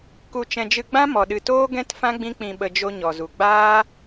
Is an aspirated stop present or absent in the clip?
absent